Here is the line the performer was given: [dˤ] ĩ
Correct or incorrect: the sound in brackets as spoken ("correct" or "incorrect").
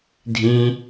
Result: incorrect